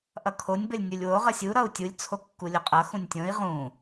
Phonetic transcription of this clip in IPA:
ʔ ʌ kʰ o nʲ b ə lʲ nʲ u lʲ w o ʁ ʌ sʲ u ɾ ʌ u̯ tʲ u lʲ t͡sʰ o kː u lʲ o qʼ ʌ x ũ nʲ tʲ õ i̯ ʁ ũ

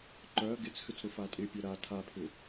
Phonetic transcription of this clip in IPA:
ǃ œ ɐ̯ ɡ ɪ t͡s x ʏ t͡s ɾ ʊ f a tʼ ɪ pʲ œ ɾ a tʰ a pʰ ʏ

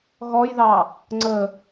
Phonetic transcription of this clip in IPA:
ɣ ɔ j ð ɑ | ŋ͡ǀ ə

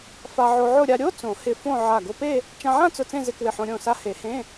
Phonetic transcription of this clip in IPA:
f a˧ ʕ o˧ ʕ ʊ˥˧ ɾʲ a˧ ɾʲ o˧˥˧ t͡s õ˨˩˦ h ɪ˧˩ f õ˥˧ ʕ a˧˩ ɡ o˧ p e˥˧ | t͡ʃ ã˧ ʕ ã˥˧ t͡s ʊ˧˩ t͡s ẽ˥˧ z ɪ˧˥˧ k w ɪ˧˩ ħ õ˧ ɾʲ õ˧˩ s a˧ h e˨˩˦ h ẽ˧˥˧

